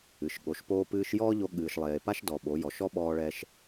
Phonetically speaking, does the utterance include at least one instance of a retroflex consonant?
yes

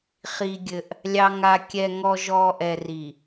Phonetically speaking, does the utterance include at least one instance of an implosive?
no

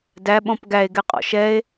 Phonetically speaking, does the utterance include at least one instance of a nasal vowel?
yes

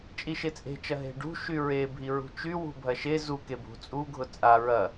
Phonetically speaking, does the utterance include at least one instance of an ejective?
yes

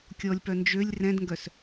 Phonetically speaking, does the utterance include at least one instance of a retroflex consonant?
no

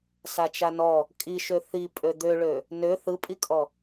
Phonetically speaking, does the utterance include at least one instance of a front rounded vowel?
yes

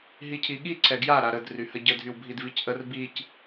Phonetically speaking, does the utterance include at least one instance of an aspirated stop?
yes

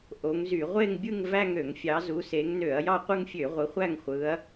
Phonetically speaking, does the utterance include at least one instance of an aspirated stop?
no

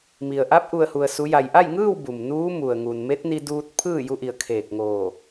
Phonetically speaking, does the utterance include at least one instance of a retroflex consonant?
no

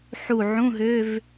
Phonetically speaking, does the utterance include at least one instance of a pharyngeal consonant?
yes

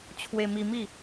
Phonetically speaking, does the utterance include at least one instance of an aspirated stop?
yes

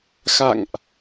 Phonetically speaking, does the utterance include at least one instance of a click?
no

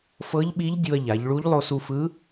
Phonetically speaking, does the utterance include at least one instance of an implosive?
yes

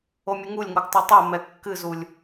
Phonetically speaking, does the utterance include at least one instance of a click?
no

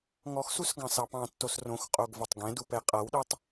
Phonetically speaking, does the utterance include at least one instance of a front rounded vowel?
no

